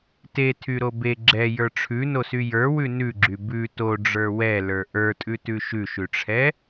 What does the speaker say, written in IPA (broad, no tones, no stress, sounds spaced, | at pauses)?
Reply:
t e tʰ y ɾ o b e ɡ͡ǁ ɛ j ə˞ ʈ͡ʂʰ ʉ n o s y j ə˞ w ʉ n ʉ ɡ͡ǁ y b ʉ t o ɖ͡ʐ ə˞ w ɛ l ə˞ ʔ ə˞ tʼ ʉ t ʉ ʃ ʉ ʃ ʉ ʈ͡ʂʰ ɛ